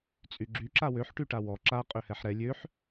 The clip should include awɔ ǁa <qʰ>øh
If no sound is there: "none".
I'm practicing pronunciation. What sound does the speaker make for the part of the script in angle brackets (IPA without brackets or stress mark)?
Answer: qʼ